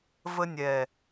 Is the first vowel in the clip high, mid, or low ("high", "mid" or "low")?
mid